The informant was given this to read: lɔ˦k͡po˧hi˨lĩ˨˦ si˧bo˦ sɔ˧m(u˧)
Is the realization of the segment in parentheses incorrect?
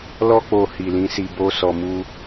yes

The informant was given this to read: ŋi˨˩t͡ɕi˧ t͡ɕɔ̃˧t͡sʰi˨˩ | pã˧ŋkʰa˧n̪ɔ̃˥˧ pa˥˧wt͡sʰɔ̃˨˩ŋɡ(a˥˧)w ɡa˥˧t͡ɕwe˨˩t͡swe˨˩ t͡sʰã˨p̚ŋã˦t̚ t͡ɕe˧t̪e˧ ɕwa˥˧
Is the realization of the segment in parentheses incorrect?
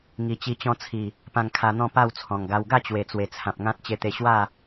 yes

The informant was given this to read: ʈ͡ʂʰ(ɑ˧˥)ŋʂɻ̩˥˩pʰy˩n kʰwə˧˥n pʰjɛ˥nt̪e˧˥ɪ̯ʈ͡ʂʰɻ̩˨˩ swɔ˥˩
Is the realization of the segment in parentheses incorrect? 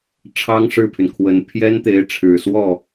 yes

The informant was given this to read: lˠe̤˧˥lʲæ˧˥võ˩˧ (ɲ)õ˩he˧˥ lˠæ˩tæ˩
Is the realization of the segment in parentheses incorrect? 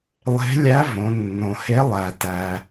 yes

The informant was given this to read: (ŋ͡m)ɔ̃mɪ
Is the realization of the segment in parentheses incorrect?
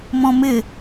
yes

